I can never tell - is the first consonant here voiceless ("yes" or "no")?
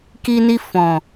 yes